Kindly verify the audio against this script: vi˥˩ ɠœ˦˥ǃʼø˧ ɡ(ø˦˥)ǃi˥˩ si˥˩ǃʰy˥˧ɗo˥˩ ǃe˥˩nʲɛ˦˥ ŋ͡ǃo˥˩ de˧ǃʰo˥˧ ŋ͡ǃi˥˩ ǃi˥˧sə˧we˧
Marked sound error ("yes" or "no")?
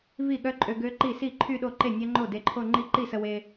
no